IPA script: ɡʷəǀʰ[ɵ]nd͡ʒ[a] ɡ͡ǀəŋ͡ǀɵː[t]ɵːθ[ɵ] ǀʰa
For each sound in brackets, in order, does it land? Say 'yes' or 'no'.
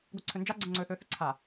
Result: yes, yes, no, no

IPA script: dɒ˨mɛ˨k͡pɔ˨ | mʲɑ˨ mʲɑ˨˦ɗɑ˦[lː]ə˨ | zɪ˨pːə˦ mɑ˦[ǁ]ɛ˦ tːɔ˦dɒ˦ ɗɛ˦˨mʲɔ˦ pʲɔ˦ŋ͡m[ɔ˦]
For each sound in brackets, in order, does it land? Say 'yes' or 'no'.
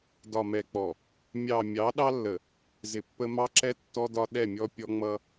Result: yes, yes, no

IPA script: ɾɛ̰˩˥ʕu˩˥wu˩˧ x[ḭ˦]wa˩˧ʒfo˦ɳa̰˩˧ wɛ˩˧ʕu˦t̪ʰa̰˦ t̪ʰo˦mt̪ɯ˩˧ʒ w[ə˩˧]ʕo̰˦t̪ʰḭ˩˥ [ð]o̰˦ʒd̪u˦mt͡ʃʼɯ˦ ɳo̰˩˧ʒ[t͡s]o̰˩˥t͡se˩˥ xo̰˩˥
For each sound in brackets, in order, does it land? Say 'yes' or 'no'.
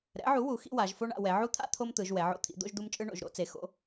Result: yes, no, no, no

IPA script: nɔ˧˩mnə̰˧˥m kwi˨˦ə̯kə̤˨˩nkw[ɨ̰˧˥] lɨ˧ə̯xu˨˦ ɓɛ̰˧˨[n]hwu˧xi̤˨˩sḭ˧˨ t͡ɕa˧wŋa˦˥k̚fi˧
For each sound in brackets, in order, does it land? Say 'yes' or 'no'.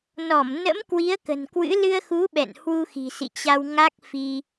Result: yes, yes

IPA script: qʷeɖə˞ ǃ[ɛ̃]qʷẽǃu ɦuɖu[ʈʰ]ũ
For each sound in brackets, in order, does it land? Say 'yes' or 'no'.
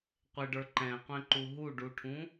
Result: yes, yes

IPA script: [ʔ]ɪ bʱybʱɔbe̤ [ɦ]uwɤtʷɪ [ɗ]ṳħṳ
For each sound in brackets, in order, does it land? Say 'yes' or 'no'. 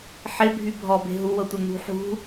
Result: no, yes, no

